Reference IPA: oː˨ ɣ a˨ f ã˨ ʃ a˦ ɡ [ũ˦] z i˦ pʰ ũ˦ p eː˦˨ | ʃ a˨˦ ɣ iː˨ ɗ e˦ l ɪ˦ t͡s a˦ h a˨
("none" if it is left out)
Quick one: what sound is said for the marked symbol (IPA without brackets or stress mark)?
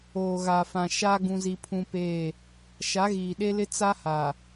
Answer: ũ˦